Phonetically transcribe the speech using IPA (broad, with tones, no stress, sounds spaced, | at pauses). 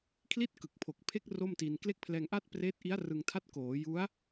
kʰ l i˥˩ t̚ k ɯ˨˩ k̚ pʰ o˨˩ k̚ pʰ e˦˥ k̚ r o˥˩ m t i˧ n k l e˦˥ k̚ pʰ l ɛː˧ ŋ ʔ a˥˩ t̚ p r eː˦˥ t̚ ʔ i˦˥ a̯ r ɯ˧ ŋ tʰ a˥˩ t̚ k oː˩˦ j u˦˥ a̯